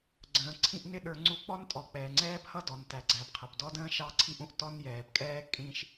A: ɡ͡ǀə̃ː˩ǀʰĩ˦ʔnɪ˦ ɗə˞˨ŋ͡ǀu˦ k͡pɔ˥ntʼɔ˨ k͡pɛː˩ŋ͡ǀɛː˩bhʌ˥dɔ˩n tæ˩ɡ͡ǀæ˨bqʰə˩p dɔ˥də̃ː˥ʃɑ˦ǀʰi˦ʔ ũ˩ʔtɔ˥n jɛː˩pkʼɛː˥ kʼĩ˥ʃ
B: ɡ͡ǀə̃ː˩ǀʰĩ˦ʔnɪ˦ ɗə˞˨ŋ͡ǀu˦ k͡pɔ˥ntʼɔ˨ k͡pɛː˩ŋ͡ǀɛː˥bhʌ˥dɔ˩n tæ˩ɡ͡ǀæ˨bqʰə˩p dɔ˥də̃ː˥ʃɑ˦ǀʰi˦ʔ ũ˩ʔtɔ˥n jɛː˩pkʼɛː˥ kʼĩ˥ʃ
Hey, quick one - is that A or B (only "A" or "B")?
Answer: B